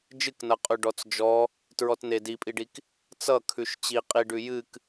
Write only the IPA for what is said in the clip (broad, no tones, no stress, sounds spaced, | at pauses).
d͡ʒ ɨ k n ʌ qʼ ʉ ɖ ɔ t͡s d͡ʒ ɔ | t ɹ ɔ t n e d i pʼ i ɖ i k | t͡s ʌ kʰ ʉ ʃ t͡ɕ i qʼ i ɖ ʉ j ɨ k